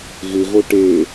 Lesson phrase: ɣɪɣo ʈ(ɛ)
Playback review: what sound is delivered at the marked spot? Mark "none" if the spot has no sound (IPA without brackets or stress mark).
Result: e